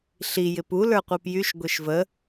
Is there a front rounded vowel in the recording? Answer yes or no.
yes